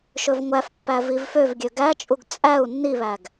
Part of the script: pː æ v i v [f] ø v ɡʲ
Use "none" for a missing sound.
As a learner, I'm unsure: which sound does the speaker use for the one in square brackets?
f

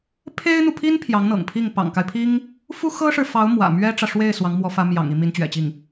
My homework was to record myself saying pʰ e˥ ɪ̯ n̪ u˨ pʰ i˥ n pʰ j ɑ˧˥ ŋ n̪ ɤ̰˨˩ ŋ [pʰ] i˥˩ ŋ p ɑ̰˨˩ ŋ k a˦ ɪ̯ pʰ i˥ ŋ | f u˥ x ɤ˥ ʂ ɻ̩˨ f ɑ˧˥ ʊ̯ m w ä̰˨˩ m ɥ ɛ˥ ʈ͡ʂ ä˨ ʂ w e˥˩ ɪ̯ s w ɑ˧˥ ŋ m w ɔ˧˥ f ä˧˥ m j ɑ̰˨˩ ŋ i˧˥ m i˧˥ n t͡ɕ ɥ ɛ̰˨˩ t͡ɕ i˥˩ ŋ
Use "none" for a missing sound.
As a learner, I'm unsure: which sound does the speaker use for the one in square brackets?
pʰ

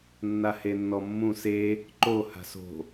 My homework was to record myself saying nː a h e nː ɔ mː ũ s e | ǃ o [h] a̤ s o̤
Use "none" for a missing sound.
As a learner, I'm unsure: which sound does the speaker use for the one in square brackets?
h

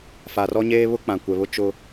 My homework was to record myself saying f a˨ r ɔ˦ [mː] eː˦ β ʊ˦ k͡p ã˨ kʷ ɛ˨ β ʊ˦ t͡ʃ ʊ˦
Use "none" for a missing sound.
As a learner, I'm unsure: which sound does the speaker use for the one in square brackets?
ɲ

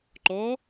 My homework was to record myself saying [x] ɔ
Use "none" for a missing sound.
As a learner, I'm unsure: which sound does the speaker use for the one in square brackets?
ǃ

